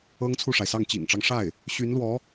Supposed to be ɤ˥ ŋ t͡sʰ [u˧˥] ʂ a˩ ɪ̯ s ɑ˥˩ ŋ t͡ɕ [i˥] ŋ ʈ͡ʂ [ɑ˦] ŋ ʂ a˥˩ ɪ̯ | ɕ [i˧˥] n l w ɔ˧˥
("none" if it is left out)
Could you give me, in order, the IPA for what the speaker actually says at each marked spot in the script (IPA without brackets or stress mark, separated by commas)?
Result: u˥˩, ḭ˨˩, ɑ˦, y˧˥